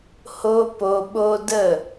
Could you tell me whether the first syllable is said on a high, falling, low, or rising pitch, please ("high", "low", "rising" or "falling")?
high